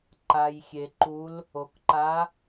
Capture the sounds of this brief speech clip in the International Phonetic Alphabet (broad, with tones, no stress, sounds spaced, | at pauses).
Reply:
ǃ a˩ j xʲ e˩ ǃ u˨˦ l | o˩ k ǃ a˨˦